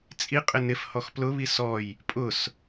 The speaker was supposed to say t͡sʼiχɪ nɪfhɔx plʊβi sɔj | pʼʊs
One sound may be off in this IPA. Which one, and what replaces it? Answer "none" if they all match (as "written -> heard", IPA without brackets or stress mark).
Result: χ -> qʼ